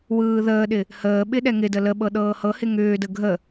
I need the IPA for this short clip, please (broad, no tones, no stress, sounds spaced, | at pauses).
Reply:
w ɯː ð əː ɗ ɪ | h əː ɓ ɪ ɗ ɛ ŋ ɪ d ə l ə ɓ ɤ ɗ ɤː h ɤ h ɪ ŋ ʏː d ə ɡʱ ə